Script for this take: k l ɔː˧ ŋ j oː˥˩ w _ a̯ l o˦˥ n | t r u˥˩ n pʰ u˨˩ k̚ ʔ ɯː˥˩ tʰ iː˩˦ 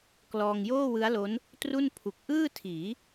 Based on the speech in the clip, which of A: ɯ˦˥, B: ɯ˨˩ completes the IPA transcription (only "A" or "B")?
A